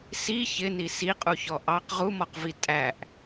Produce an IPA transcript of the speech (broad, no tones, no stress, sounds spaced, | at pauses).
s i ç ɪ n i s i qʼ u ç ɔ ʔ ɑ q ʁ u m ɔ q v i tʼ æ ʔ